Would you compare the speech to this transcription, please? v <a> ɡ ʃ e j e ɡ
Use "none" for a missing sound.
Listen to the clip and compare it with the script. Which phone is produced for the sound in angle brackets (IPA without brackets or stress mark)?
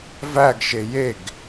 æ